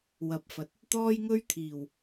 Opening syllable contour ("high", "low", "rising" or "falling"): rising